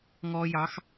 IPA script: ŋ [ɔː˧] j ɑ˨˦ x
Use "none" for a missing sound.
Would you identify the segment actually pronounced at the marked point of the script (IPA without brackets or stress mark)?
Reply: ɔː˧